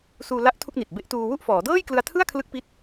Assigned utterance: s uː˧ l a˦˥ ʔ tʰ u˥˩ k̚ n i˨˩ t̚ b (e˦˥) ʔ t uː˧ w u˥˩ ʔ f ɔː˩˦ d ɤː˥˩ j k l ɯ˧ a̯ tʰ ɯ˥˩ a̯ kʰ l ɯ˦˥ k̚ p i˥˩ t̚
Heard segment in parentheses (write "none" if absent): e˦˥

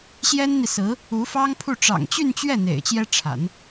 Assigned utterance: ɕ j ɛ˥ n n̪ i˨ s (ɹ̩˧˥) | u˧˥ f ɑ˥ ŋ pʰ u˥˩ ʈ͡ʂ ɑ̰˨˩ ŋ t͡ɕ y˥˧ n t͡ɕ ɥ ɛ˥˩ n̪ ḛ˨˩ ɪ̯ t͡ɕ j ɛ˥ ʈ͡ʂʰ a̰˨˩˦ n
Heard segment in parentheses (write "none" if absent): ɹ̩˧˥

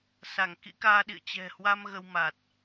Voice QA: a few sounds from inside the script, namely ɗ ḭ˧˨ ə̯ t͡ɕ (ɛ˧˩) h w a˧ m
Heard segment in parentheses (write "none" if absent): ɛ̤˨˩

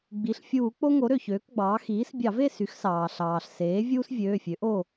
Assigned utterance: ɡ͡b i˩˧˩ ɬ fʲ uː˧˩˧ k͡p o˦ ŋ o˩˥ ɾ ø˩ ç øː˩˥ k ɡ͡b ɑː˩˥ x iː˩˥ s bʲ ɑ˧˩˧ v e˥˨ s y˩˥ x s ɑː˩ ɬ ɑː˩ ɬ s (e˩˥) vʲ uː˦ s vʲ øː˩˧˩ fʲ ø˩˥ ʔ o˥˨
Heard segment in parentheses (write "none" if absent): eː˩˥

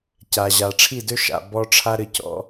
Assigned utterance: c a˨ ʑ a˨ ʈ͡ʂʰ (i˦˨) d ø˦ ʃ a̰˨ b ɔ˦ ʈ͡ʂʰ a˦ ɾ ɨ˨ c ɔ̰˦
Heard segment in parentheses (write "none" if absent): i˦˨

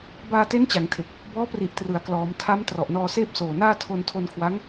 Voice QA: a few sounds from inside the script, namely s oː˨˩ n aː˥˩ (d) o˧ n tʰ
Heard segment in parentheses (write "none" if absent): tʰ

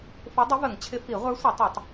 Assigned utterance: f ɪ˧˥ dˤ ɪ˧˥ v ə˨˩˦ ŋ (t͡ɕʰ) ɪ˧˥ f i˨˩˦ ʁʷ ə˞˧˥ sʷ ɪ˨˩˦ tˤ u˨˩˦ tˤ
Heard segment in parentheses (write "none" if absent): t͡ɕʰ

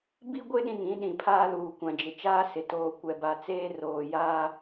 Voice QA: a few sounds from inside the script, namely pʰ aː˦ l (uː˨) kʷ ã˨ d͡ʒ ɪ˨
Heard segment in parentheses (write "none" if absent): uː˨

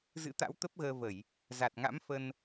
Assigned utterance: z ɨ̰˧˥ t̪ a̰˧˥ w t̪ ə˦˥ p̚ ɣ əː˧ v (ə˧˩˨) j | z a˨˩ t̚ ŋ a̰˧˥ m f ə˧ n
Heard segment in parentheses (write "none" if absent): ə˧˩˨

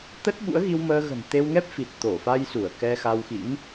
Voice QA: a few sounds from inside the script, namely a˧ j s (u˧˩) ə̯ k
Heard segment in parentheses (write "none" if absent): u˧˩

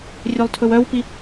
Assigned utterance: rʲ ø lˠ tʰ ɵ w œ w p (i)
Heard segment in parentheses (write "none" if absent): i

